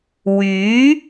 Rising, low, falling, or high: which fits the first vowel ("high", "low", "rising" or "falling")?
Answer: rising